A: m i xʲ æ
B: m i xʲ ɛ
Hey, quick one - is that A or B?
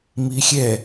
B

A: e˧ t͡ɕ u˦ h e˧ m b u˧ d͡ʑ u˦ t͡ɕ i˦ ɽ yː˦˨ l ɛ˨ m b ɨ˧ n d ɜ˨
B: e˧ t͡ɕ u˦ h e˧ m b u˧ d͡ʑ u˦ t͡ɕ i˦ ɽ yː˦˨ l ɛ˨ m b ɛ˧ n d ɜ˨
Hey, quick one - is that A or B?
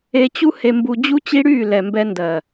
B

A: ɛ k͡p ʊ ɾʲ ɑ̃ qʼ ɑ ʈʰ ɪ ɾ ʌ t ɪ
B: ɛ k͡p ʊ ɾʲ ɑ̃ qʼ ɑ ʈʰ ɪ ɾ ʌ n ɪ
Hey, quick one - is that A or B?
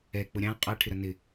B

